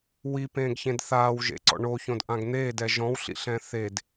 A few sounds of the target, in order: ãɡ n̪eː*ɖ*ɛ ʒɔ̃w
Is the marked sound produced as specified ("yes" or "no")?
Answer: no